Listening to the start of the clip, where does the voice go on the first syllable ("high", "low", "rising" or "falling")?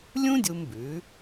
high